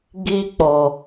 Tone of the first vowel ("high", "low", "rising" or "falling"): high